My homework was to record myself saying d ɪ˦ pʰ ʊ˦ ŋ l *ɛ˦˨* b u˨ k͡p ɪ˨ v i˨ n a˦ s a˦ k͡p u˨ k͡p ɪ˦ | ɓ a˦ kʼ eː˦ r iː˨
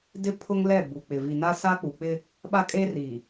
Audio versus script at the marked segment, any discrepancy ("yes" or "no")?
no